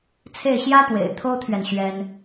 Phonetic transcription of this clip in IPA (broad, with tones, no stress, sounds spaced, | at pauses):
t͡sʰ e˥˩ ɪ̯ ɕ j ä˥ t̪ w ḛ˨˩ ɪ̯ t̪ʰ o˥ ʊ̯ t̪ʰ ɥ ɛ˨ n ɕ ɥ ɛ˥ n